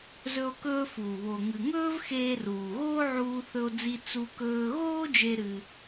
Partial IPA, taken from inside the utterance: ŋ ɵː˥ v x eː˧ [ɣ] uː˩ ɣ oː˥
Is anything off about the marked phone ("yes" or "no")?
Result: yes